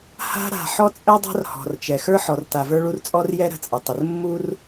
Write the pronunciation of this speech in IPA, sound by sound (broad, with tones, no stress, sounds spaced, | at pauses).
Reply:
h a̤˦ ɾ a̤˨ ħ ɔ˦ t͡sʼ ɛ˦ dˤ a̤˦ r h ɔ̤˨ r t͡ʃ ɛ˨ x ə˞˦ ħ ɔ˨ r t a˨ v ə˞˦ ɭ u˦ r t͡sʼ ɔ˦ r j ɛ˦ ɾ ə̤˨ t͡sʼ ə˨ tˤ ɪ˨ r mː u˦ r